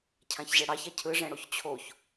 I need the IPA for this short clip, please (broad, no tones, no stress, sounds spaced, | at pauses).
cʰ ã ç ʑ ɛ ɽ ɑ ç a cʰ ɯ ʐ ɛ̃ ɽ o ç t͡ɕʰ o ç